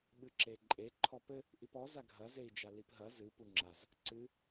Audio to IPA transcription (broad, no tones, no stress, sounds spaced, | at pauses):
ɓ ɨ ǁ e ǃʼ e ǃʰ ɔ p ɘ | ʔ i p ɔ z a ɡʱ ɐ z e i̯ d͡ʒ a l i p ɦ ɐ z ɨ p u ŋ͡ǁ a z | ǀ ɨ